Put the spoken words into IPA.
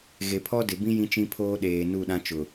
ɣ e˨ pʰ ɔ˦ d ɪ˨ b ĩ˦ j ĩ˦ t͡ʃ ĩ˦ pʰ oː˦ ɗ eː˨ n u˦˨ ɗ ã˦ t͡ʃ ʊ˨

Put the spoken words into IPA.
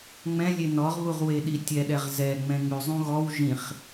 ŋ͡m ɛ̃ lʲ e n ɔ ʁ β u ʁ w e ɗ i tʲ ɛ ɗ ɛ ʁ z ɛ ŋ͡m ɛ̃ ŋ͡m ʉ zˤ ũ ɣ ɔ w ʒ ĩ χ

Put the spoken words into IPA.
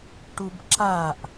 ʈ u b ǁ a ʔ

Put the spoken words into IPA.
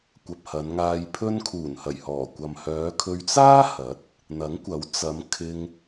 kʷ ɐ˨ p̚ h ɐ˨˧ n ŋ aː˧ j pʰ ɵ˥ n kʰ uː˨˩ n h ɐ˨˩ j h ɔː˨˩ kʷ ɐ˨ m h œː˨˧ kʰ ɵ˧ ɥ t͡s aː˥ h ɐ˨˥ t̚ | n̪ ɐ˨˥ ŋ kʷ ɐ˨˥ w t͡s ɐ˨˧ m kʰ ɪ˧ ŋ

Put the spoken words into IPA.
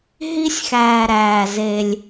ɦ i˦ sʲ x æː˨ ɾ æː˨ z e˦ lʲ

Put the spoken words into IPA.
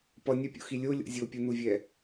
p ʌ nʲ a pʲ o̰ x i lʲ o lʲ o̰ zʲ o pʲ u n u vʲ ɛ

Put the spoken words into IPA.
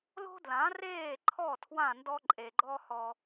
l o̤˦ d l ã˨˦ r eː˦˨ ǃʰ ɔ˦˨ tʰ w ã˦˨ n d ɔ˦ ǃʼ e˨ ɡ͡ǃ ɔ˦ h ɔ˧

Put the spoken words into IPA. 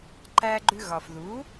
ǃ æ˧ ɡ͡ǃ ʉ˧ ɣ ɒ˩ f ð u˩˥

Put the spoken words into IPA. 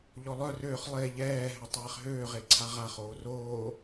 ʎ ɔ lˠ œ r øː χ lˠ e ʎ ɛː ɦ ɛ tˤ ɛː χ ɦ øː ʁ e ǀʰ a ʁ a χ oː r oː

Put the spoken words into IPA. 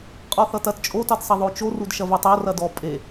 qʼ ɔ θ ʌ t ɐ t t͡ʃʼ o t ʌ d sˤ ɐ ðˤ o t͡ʃ o r u d ʃ ɐ v u tˤ o r ɐ d ɔ pʼ e

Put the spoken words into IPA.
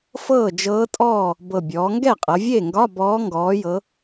f ɤː˥˩ d͡ʒ ɤː˧˥ tʼ ɔː˥˩ | b ɤ˨˩ bʲ ɔː˩˧ ŋ ɡ ɛ˥˩ qʼ ɤ˩˧ vʲ e˥˩ ŋ ɡ ɒ˧˥˧ b ɔː˧˥ ŋ ɡ ɔː˩˧ j ɤ˩˧

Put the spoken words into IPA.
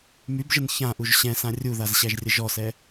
m y b ʒ ə n ç ã ʔ u ʒ ɕ ɛ̃ s ã rʲ u ð a z ɕ æ ʒ rʲ ə ʒ ɔ s ɛ

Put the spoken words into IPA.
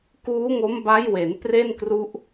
k uː˦˥ ŋ o˦˥ m b a˦˥ j w e˩˦ n p r e˥˩ n k r u˦˥ ʔ

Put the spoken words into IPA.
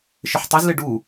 ʃ ɪ ħ tˤ i z l ɪ ɖ u

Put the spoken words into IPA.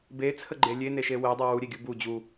b e t͡sʰ ə ɡ͡ǃ e lʲ e n e ʃ e w e dˤ e w u ɾʲ e ɡʲ u b u d͡ʑ u

